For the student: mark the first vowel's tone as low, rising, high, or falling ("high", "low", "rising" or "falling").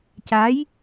rising